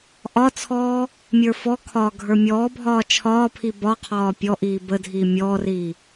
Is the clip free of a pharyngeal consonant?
yes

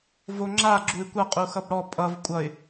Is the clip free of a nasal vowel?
yes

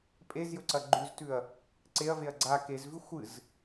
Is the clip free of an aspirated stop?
yes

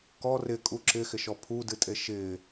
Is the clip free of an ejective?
no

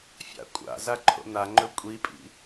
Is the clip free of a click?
no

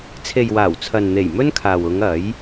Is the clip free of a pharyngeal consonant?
yes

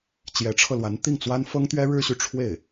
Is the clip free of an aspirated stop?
no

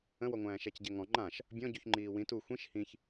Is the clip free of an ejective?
yes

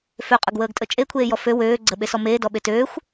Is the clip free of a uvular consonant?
no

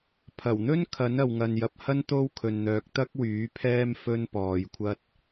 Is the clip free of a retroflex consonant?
yes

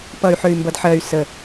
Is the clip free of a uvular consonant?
yes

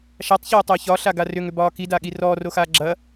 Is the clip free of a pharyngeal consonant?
yes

